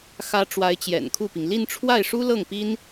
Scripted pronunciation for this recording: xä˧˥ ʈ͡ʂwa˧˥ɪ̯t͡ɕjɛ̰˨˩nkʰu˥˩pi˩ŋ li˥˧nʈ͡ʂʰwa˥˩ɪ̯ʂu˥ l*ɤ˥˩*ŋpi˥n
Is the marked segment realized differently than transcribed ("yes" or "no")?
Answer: no